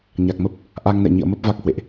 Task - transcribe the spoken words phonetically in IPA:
ɲa˨˩k̚mə˦˥p̚ | ʔa˧ŋnɛ̰˧˨ɲḭ˧˨ə̯mə˦˥p̚ va˦˥k̚hwḛ˧˨ʔ

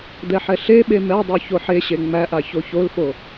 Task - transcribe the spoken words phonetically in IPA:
d̪ɛħɛɬeɓe mɛdˤø çoħeɕe ŋ͡mæʔa çoçolfo

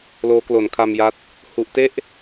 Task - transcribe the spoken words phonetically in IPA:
loː˦˥klo˨˩n kʰa˧mja˦˥t̚ | hu˥˩ʔ te˥˩ʔ

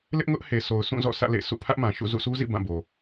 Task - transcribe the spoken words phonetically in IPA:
lɪ˦ʔŋʊ˦ʔ he˨so˨ʊ̯sũ˦˨ zɔ̰˦˨sä̰˦˨lḛ˦˨sʰṵ˦˨ pʰä˦ʔmã˨ʃṵ˦˨ zṵ˦˨sʰu˦zḭ˦˨ bã˦˨bo˨

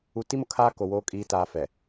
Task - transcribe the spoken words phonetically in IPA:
u˨ti˦mʊ˨kʰaː˦ ko˨woː˦ kʼiː˨taː˨ fɛ˨

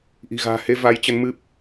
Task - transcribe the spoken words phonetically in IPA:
ʔi̤˨˩ɣa̤ː˨˩he˧ va˨˦jt͡ɕə˨˦nmɨ˦˥p̚

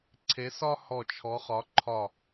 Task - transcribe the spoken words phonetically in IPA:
ǀʰe˨˦ sɒ˦ hɔ˧˩t͡ʃʰɔ˨˦χɒ˨˦ ǃʰɒ˧˩

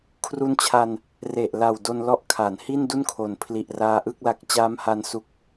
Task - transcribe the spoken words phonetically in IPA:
kʰru˧nt͡ɕʰa˧n | re˨˩ʔla˨˩w do˧nlɔ˦˥ʔkʰa˩˦n hi˥˩ndu˥˩nkʰo˨˩n pʰli˨˩ʔ raː˧ʔɯ˥˩k̚la˦˥k̚ t͡ɕaː˦˥mha˧n su˦˥k̚

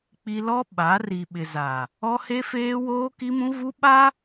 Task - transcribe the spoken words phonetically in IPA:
k͡pi˦ lɔ˦ ɓa˨˦ ri˨ɓɪ˨ za˨ | ɔ˦he˦feː˦ woː˦ki˦mũ˦vu˦ ɓa˦

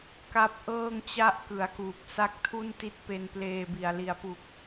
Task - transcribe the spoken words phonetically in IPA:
ka˦˥p̚ ʔɤː˥˩ŋt͡ɕa˥˩ʔ kɯ˩˦a̯kuː˨˩k̚ sa˦˥k̚tʰu˥˩n ti˦˥t̚pe˧npleː˧bi˨˩a̯ li˨˩a̯pu˨˩k̚

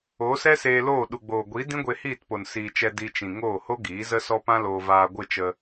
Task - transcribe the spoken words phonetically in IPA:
o˨˦sɛ˦seː˧loː˦˨ ɗu˨ɡ͡boː˨ɡʷi˨˦ dĩ˦ɡʷe˧hiː˦˨tpo˨n siː˨t͡ʃɛ˧ di˧t͡ʃĩ˨ ŋoː˦˨ho˦ɡiː˨˦ zə˦sɔ˦pã˦loː˧ vaː˧ɡʷɨ˦˨t͡ʃə˧

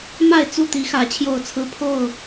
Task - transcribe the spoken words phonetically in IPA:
ma˥˨ɪ̯t͡su˥˨t̪i˨˦xä˨˩ t͡ɕʰjo˥˨ʊ̯t͡sʰɹ̩˦ pʰo˥˨ʊ̯

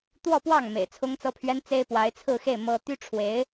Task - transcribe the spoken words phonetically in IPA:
t̪wɔ˥˧pwɑ˥˩ŋ mḛ˨˩ɪ̯t͡sʰʊ˥ŋt͡sɤ˥pʰɥɛ˥n t͡se˥ɪ̯ pwa˧˥ɪ̯t͡sʰɹ̩˥˧xe˥˩ɪ̯ mɤ˥ t̪y˥ʈ͡ʂʰwe˧˥ɪ̯

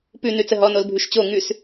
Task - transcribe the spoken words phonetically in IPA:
pʉ nʉt͡səɦɔ nolbʱʉʃt͡ɕo ŋʉs

